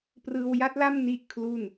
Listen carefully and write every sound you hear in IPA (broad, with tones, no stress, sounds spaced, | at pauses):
p r ɯː˧ w j a˦˥ t̚ l a˥˩ m n i˥˩ ʔ kʰ l u˥˩ n